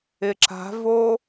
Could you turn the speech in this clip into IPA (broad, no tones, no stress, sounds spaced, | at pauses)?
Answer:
ɪ ǁ a̤ v o